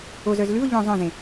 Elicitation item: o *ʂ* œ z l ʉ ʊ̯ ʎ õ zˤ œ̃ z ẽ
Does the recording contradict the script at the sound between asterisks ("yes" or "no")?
yes